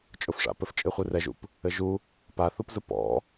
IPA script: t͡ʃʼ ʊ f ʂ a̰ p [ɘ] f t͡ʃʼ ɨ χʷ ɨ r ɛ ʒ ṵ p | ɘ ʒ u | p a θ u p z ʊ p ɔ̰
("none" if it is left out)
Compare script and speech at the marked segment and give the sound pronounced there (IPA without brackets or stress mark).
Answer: ɘ